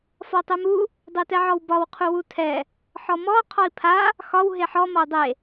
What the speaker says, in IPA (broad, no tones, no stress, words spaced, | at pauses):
fɒtˤɛmu | dˤetɛʕɔwbɒw qʰuwutʰɛ | ħɔmɔ qʰɔi̯pʰa | xɒw ɦeħɔ mɒu̯dˤe